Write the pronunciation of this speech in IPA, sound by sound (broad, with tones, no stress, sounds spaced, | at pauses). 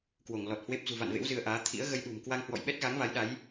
k w o˧˩ ŋ l ɔ˨˩ t̚ h w e˦˥ p̚ z ṳ˨˩ v a̰˧˨ n v ḛ˧˥ w z ɨ˧ ə̯ ʔ aː˨˦ t̪ʰ ḭ˧˥ ə̯ ɣ ə˧ j ɗ ṳ˨˩ m k w a˧ ŋ h w ɔ̰˧˨ j ɓ ɛ˦˥ t̚ ɣ a˨˦ ŋ v a˨˦ j ɗ a˨˦ j